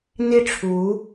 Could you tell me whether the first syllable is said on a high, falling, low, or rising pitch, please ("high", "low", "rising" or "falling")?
falling